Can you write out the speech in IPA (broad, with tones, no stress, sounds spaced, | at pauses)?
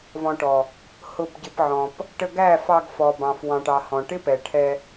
v ɔ̃˧ ʈ ɔ˨ | h ʊ˧ b ɟ ɪ˧ p ʕ ɔ̃˨ p | ʈ ə˧ ɡ æ˦˨ f ɑ˧ ɡ f ɔ˨ b ɑ̃˨ f w ɑ̃˨ ʈ ɑ˨ h ɔ̃˨ ʈ ɪ˦ p ɛ˨ ʈʰ ɛ˧